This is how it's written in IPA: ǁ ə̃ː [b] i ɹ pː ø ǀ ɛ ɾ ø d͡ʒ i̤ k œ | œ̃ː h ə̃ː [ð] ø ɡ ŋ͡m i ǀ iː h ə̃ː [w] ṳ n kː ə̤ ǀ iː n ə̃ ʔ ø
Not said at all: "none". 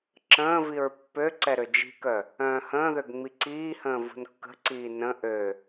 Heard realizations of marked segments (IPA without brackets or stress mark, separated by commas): v, ð, v